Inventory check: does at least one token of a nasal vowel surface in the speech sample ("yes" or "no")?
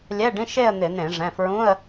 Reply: yes